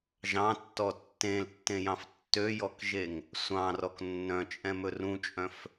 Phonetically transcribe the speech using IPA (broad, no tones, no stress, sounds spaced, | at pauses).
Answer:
ʒ ɑ̃ tː ɔ tː ẽ l tː ẽ j ɑ̃ f tː ø j ɔ k ʒ e ŋ | sʷ ɑ̃ r ɔ k nː œ̃ t͡ʃʼ ɛ̃ m ɵ r ũ t͡ʃʼ œ̃ f